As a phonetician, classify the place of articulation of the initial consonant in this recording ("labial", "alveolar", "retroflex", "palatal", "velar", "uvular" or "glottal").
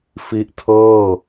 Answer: labial